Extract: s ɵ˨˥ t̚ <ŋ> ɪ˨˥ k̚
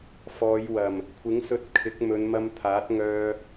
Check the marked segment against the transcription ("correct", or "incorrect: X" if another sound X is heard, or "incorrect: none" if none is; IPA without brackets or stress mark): incorrect: kʰ